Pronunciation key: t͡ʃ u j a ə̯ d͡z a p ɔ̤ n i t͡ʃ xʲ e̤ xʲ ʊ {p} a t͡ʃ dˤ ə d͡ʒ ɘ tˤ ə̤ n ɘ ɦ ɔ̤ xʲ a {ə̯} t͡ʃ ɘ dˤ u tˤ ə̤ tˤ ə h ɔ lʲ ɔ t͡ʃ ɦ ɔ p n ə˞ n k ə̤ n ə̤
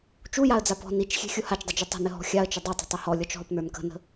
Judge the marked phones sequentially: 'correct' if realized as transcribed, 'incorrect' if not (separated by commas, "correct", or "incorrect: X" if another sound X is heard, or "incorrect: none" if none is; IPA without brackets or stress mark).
incorrect: h, correct